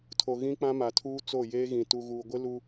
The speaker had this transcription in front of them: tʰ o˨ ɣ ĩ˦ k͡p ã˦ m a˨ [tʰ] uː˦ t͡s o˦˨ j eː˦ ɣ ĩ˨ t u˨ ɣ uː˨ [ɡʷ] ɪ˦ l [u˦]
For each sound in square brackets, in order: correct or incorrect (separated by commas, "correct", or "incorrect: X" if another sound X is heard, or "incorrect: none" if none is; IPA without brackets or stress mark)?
correct, correct, correct